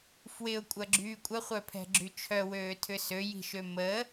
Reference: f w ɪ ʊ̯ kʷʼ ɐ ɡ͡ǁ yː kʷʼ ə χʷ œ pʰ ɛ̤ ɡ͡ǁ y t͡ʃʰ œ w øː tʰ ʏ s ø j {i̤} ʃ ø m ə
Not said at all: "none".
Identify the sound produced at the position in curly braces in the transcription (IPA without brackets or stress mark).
i̤